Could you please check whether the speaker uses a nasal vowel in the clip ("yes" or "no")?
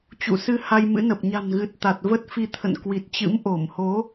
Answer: no